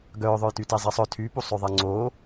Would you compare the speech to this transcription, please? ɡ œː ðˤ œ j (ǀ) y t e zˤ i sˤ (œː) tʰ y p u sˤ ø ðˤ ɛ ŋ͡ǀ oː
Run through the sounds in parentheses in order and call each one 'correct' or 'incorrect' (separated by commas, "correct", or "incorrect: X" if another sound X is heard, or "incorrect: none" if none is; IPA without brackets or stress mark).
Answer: incorrect: t, incorrect: œ